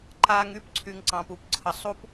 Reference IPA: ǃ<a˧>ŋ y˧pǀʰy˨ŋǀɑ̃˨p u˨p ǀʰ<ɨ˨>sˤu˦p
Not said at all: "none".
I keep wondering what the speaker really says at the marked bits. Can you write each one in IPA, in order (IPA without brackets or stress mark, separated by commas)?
a˧, ə˨